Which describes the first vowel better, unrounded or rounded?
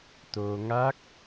rounded